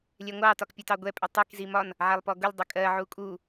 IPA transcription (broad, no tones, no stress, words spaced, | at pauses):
lʲɛŋʷɑ tɒkpʲutɑɡʷɛ pʼɪtˤik zimɒn | ʕælˠpɔɡʊlʲ dˤɪkʼɜ ʕukʼu